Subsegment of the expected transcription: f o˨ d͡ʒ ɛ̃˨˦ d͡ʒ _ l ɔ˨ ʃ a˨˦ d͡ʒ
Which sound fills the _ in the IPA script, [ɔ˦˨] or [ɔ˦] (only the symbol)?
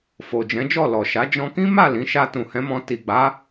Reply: ɔ˦˨